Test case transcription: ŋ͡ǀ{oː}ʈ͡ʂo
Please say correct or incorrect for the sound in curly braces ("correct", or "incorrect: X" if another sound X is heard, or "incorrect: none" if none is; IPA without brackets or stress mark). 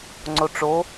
incorrect: o